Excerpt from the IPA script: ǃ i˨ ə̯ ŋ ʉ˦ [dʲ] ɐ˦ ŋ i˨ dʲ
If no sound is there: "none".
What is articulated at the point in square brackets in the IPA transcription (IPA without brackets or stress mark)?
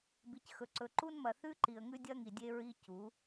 dʲ